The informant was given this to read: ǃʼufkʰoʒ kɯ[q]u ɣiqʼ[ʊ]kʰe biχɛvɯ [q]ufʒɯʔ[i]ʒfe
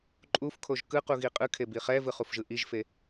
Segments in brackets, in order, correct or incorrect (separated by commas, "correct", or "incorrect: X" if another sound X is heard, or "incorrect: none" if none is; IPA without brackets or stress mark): correct, incorrect: ɯ, incorrect: χ, correct